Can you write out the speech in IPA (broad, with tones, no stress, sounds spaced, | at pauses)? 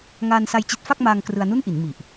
ŋ aː˧ n s a˧ j t͡ɕ i˦˥ t̚ f a˥˩ k̚ m aː˧ ŋ k r ɯ˧ a̯ n u˥˩ n ʔ i˩˦ n m i˨˩ ʔ